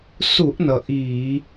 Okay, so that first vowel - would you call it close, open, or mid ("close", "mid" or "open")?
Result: close